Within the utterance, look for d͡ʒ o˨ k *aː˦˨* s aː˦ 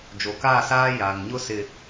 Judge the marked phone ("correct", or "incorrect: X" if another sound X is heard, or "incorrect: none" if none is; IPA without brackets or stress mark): correct